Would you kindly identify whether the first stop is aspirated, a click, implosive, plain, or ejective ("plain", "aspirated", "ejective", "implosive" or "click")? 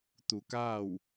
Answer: plain